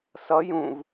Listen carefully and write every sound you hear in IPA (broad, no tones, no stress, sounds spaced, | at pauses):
s ʌ j ũ v